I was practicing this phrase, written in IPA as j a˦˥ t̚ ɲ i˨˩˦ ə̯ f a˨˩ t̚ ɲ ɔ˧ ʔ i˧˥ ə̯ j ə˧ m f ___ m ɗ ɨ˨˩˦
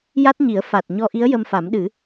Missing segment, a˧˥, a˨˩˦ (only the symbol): a˨˩˦